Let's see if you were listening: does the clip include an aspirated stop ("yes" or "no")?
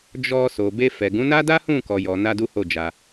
no